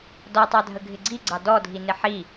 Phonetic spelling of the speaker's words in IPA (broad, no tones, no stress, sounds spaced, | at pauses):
d ɔ tˤ ɑ dʱ ə ɡʱ ɪ ɡ͡ǀ i ɡ͡ǀ ɑ d ɔ dʱ i n ɪ ħ i